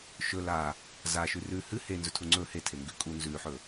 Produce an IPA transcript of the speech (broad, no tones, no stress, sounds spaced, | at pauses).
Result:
ʃ ɵ l a | z a ʃ ʉ r ʉ h ɨ h e n z ɵ tʰ u ŋ͡ǀ ɵ h e tʰ e ŋ ɡ ʉ kʼ u n z ʉ ħ ɵ